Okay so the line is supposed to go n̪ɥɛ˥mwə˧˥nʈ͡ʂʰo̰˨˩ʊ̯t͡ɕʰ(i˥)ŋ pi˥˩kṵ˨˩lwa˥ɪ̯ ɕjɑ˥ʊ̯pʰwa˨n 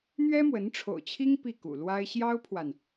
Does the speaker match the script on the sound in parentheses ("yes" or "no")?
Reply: yes